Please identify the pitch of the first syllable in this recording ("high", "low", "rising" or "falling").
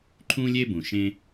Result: high